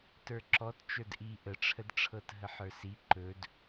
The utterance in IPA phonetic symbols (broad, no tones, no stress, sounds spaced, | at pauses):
t ə˞ ǁ ɔ t t͡ʃ ə˞ d ʔ i ʔ ə ʈ͡ʂʰ ə d ʈ͡ʂʰ ɤ t ɦ ə ħ ə˞ s i ǃ ɵ d